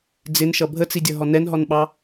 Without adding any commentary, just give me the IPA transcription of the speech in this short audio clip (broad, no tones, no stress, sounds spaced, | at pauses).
d͡z ɪ n ʃ ʌ bʱ ə t͡s i dʲ ʌ ɦ ɔ n ɛ n ɦ ɔ n ɓ ɑ